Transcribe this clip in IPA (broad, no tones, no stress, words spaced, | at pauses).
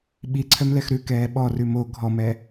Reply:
ɓiǀʰœmlɛx ɾʉkɛː ɓɔrʉ mo ɡʱɔmɛ